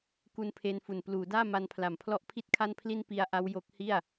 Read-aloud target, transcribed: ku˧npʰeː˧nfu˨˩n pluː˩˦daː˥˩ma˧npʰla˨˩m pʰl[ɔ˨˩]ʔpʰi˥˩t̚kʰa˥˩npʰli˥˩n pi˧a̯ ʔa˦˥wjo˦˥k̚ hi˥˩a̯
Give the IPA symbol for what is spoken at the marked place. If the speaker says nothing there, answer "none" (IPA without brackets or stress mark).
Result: ɔ˦˥